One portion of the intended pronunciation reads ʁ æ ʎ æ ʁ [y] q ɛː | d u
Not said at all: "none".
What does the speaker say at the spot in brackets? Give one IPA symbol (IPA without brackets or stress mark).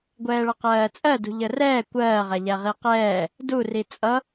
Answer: i